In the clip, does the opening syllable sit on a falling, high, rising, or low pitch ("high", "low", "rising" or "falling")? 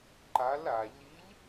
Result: rising